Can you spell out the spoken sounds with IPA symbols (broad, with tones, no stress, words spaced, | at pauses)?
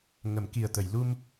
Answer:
ŋə˨˩˦mki˨˩ə̯t̪ə˨˩˨j lu˧m